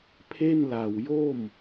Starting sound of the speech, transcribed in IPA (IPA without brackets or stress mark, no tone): pʰ